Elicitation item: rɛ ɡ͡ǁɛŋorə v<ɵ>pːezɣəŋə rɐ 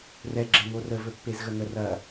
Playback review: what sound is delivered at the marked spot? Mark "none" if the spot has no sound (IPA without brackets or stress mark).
ɵ